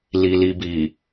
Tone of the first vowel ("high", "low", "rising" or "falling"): low